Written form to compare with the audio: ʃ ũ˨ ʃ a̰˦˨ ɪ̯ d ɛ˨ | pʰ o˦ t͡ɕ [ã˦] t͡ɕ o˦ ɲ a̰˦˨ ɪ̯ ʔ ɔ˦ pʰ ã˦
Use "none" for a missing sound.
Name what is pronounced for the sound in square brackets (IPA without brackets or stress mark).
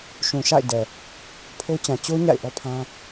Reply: ã˨